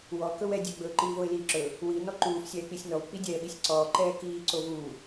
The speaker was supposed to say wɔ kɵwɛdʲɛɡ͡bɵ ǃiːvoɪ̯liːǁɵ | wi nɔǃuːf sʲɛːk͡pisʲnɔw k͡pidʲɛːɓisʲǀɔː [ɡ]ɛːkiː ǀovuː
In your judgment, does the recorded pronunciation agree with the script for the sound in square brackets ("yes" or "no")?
no